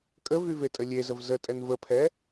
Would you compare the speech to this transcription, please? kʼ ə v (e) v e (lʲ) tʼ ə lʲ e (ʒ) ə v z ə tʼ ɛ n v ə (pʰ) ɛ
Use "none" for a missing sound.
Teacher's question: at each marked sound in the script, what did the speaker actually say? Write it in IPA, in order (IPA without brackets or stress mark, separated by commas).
y, none, z, pʰ